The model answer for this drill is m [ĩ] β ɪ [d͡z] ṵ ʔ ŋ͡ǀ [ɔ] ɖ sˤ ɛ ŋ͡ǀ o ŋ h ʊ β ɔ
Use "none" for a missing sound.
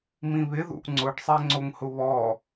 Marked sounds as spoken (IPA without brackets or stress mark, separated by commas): ĩ, ð, ʊ